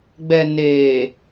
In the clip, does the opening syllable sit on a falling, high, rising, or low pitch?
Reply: low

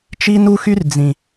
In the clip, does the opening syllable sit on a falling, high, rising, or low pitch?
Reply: high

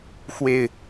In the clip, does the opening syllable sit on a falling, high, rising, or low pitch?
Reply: low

